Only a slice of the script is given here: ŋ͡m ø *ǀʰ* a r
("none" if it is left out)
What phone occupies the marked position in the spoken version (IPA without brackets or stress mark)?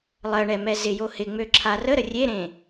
ǁʰ